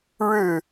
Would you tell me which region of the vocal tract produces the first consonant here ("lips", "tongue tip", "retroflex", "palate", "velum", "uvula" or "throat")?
retroflex